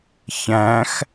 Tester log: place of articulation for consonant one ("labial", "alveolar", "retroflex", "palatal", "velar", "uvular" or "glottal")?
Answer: palatal